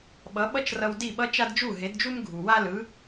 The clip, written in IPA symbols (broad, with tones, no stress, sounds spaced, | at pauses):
ɓ ʌ˩˥ ɓ ʌ˥ t͡ʃ r ʌ˧ w d i˥˩ ɓ ʌ˥ t͡ʃ a˥ d d͡ʒ u˥˩ ɦ e˩˥ d d͡ʒ u˥ m ɡʱ u˩ w a˥ l ɯ˩˥